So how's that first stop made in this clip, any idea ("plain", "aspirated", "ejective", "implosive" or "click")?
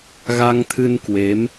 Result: aspirated